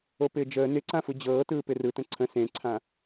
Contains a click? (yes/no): yes